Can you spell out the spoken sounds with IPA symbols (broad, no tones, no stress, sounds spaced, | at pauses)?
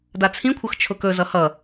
d a t͡sʰ ĩ kʷʰ ʌ x t͡ʃʰ ʊ k ɵ z ʌ h ʌ